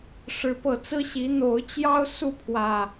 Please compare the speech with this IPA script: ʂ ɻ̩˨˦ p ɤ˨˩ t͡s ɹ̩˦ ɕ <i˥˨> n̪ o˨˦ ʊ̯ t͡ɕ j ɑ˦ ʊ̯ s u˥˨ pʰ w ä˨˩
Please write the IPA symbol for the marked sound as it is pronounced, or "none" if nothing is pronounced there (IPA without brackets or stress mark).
i˨˦